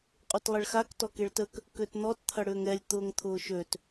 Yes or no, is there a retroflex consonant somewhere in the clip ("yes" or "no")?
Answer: yes